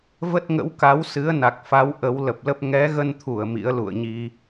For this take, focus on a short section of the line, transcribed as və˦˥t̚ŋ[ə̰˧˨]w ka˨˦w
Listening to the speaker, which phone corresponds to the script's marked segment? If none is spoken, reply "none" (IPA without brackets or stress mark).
ə̰˧˥